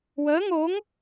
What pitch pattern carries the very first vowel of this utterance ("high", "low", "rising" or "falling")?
rising